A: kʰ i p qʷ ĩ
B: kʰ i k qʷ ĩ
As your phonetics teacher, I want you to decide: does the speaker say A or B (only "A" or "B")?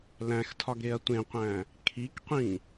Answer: B